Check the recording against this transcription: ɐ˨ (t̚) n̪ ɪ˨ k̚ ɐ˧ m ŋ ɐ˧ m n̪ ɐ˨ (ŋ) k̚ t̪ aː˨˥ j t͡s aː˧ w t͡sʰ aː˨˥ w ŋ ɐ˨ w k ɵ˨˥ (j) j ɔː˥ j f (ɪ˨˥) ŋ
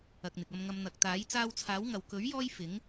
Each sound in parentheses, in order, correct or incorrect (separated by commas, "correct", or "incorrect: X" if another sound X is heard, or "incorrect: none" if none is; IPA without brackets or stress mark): incorrect: k̚, incorrect: none, incorrect: ɥ, correct